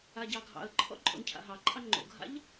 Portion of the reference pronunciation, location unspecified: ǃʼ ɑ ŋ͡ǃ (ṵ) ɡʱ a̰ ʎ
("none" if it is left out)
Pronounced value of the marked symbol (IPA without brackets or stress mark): o̰